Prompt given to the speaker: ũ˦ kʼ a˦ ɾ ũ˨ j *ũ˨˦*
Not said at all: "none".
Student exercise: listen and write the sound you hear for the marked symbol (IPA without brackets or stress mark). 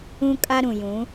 ũ˨˦